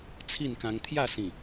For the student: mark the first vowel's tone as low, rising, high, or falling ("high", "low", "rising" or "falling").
falling